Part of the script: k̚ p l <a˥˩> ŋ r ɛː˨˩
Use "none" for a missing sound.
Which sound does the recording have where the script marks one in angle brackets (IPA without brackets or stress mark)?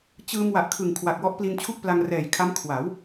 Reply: a˧